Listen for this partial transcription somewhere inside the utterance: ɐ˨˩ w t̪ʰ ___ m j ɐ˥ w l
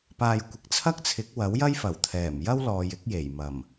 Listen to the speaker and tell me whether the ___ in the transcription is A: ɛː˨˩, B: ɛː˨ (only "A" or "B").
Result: A